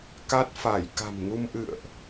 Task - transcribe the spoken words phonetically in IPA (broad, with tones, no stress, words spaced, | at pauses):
ka˦˥t̚fa˧˩j ka̤˨˩mŋu˧mʔɨ̰˧˨ə̯ʔ